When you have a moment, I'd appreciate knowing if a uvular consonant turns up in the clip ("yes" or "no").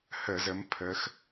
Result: no